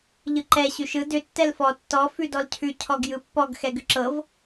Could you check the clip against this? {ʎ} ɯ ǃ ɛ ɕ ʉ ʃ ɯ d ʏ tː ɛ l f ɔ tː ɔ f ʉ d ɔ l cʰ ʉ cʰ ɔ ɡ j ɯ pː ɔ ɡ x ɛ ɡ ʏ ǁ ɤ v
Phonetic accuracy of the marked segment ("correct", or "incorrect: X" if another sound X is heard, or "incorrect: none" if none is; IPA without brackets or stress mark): correct